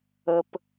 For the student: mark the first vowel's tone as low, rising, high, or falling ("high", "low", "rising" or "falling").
low